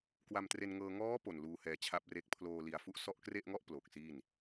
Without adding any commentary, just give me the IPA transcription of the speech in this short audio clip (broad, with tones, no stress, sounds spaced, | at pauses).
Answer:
k w a˧ m t r e˧ n ŋ ɤː˧ ŋ ɔː˦˥ p o˨˩ n l uː˧ h ɛː˧ t͡ɕʰ a˦˥ p̚ r e˦˥ k̚ pʰ l oː˧ l i˨˩ a̯ f u˦˥ ʔ s ɔ˦˥ ʔ k r e˥˩ ʔ ŋ ɔ˥˩ ʔ p l o˨˩ k̚ s iː˥˩ n